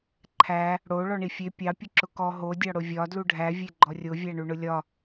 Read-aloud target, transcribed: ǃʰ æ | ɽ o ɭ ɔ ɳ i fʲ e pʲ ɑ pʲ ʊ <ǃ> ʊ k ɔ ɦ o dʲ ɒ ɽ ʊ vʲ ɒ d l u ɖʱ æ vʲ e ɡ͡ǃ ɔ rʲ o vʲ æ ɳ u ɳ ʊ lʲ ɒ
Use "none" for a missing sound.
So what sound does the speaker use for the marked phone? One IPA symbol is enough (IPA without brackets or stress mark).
ǁ